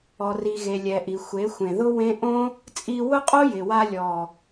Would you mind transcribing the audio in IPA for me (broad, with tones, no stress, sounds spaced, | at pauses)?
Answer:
ɔ˨ r i˨ ɣ e˨ lʲ ɛ˨ ʔ i˨ xʷ e˨˦ xʷ ẽ˨ ð ʊ˦ w ẽ˦ ʔ õ˦ | t͡sʼ i˧ w ʊ˦ qʼ o˦ j ɪ˨ w a˧ lʲ ɔ˨